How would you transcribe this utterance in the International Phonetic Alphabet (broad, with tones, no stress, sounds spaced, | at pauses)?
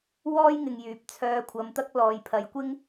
w ɔː˥ j ŋ ɪ˨ ŋ j yː˨˥ p̚ t͡sʰ œː˧ kʷʰ ɐ˨˧ m t̪ ɐ˥ k̚ l ɔː˨ j pʰ ɐ˨˧ j kʷ ɪ˥ ŋ